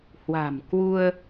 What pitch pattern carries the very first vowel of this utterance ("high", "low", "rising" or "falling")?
low